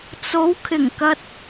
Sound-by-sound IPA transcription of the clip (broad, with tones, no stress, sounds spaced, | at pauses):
t͡s o˨˧ w kʰ ɪ˨˩ ŋ k ɐ˧ t̚